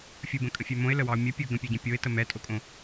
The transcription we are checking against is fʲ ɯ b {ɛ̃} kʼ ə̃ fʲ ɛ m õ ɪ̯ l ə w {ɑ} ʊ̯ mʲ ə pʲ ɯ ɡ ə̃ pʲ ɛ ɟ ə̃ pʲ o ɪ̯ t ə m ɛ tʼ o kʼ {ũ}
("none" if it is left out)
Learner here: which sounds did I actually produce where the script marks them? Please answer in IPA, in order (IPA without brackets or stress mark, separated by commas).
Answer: ə̃, ɑ, õ